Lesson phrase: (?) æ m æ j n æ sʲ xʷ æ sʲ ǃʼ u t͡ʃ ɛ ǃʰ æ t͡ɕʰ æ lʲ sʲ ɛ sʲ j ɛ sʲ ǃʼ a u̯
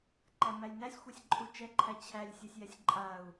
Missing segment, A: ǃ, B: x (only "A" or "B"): A